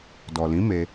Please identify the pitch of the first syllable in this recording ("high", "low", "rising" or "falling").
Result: low